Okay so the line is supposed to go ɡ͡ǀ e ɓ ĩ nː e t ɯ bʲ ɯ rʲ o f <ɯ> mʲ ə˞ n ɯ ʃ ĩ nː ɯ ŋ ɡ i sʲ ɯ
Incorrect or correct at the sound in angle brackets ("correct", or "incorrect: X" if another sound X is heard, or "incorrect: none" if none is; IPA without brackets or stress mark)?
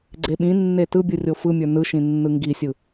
correct